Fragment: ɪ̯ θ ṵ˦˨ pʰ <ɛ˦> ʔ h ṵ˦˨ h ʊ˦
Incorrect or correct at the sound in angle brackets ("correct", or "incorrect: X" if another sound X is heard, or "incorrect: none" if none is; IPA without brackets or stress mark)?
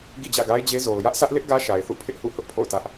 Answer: incorrect: ɪ˦